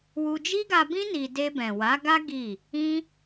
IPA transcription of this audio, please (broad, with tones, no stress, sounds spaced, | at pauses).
w u˧ d͡ʒ i˦ ɡ a˧ b ĩ˦ n i˧ d e˧ b ɛ̃˨ w a˨˦ ɡ a˦ ɡ i˦˨ | ĩ˦